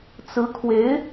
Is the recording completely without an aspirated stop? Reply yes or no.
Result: no